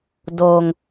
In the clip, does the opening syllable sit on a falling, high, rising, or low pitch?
low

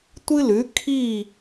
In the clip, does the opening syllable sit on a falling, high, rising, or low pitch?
high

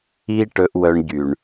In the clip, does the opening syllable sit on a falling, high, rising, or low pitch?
high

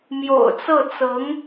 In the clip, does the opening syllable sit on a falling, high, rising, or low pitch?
low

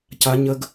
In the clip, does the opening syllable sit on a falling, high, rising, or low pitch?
high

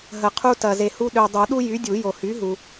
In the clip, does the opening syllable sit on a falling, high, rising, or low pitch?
low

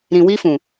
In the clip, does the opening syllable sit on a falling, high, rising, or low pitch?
low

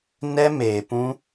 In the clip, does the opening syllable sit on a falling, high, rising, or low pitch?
high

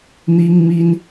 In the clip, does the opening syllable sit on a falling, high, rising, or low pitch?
high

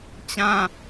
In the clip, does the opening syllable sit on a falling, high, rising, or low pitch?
high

